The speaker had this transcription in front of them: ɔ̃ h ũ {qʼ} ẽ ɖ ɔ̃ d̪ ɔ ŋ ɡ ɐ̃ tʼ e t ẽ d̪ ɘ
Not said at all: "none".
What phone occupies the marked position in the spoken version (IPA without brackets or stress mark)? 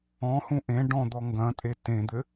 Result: ʔ